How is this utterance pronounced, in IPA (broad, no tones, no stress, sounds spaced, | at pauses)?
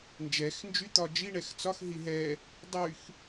n d͡ʒ ɛ x n d͡ʒ y t̪ ɒ d͡ʒ i ɳ ɛ x t͡s ɒ x ɦ i ɦ ɛ | dˤ y x